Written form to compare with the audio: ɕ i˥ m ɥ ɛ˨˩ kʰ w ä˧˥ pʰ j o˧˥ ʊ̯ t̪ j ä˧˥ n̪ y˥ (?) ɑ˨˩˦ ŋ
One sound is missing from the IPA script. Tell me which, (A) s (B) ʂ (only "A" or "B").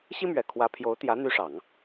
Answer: B